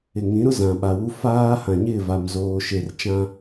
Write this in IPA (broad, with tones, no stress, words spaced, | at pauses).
ɪ˨ŋĩ˨˦ɾʊ˦ zã˨ɓa˨wu˦ faː˦ hã˨ɲɪ˦˨va˨m zoː˨ʃe˨rt͡ʃã˦